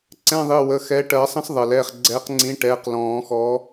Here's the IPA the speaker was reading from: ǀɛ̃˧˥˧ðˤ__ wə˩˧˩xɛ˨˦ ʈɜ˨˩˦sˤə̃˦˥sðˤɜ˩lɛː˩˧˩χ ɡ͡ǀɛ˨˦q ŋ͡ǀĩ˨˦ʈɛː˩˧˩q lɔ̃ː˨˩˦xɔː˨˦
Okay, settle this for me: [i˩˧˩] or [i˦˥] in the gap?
i˩˧˩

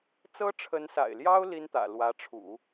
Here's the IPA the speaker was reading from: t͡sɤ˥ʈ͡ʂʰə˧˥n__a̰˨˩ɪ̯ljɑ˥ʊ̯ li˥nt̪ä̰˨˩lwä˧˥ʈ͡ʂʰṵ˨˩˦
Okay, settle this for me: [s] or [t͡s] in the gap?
s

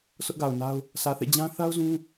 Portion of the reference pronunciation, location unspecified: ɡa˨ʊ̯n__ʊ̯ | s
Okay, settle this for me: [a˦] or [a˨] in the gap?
a˦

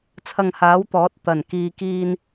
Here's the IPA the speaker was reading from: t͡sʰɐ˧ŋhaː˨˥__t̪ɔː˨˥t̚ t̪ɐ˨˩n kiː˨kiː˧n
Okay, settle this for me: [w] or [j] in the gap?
w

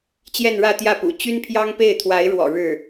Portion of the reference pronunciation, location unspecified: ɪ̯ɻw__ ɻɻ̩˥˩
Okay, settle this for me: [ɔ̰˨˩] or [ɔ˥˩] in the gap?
ɔ̰˨˩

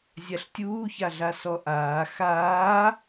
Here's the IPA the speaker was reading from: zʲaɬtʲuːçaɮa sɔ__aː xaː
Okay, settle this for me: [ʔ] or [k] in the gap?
ʔ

